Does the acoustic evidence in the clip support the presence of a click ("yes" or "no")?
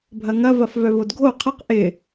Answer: no